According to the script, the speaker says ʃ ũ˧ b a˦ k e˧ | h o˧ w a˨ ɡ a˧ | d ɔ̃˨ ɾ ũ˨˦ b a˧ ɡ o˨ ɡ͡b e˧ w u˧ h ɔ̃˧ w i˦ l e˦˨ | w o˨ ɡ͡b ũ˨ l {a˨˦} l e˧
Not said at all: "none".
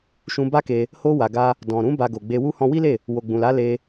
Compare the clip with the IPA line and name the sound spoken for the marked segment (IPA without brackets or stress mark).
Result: a˨˦